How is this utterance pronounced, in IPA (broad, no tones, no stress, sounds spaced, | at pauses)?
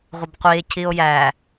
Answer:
ʁʷ ə b qʷ i e̯ cʰ i o̯ j æ